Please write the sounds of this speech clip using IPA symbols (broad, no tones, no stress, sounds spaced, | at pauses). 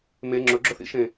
m e ŋ͡ǁ ɵ ɡ͡ǁ ɵ θ ḭ ʃ ẽ